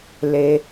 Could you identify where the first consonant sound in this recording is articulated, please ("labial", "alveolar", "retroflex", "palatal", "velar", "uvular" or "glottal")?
alveolar